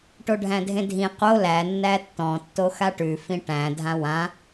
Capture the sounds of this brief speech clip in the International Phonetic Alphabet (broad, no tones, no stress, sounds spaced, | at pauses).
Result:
ʈ o ɖʱ æ̃ dʱ ẽ dʱ ĩ q o l æ nː æ tː ɔ̃ tː o x a ʈ ʉ f ĩ ʈ æ̃ dʱ ã w ã